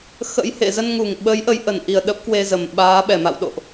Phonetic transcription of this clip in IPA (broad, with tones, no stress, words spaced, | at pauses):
xə̰˧˥j hḛ˧˨zə˧nŋu˨˩ŋɓə˨˦j ʔə˨˦jʔə˧˩nʔi˨˩ə̯ ɗə˦˥p̚kwe˧zə˨˩m ɓaː˨˦ɓɛ˨˩ma̰˧˨wɗo̰˧˨ʔ